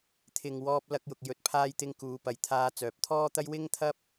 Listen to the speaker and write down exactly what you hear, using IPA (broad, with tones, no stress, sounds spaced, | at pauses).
t̪ʰ ɪ˨ ŋ w ɔː˧ p̚ l ɐ˧ k̚ j ʊ˨ k̚ j ɵ˧ t̚ pʰ aː˥ j t̪ ɪ˥ ŋ k uː˨˧ p ɐ˨ j t̪ʰ aː˧ t͡s œː˨ p̚ t̪ʰ ɔː˥ t̪ ɐ˥ j w ɪ˥ ŋ t̪ʰ ɐ˥ p̚